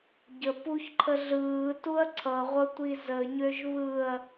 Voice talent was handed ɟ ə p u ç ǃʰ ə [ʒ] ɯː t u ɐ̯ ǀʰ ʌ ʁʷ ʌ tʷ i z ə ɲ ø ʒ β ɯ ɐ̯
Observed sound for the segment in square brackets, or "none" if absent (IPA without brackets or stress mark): ɮ